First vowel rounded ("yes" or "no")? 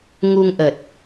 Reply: yes